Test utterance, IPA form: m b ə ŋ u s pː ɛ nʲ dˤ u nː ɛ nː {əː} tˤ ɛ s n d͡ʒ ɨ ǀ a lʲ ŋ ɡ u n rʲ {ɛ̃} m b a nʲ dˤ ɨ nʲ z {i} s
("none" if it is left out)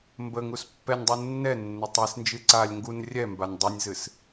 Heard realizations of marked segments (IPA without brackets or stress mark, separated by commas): ə, ɛ, ɨ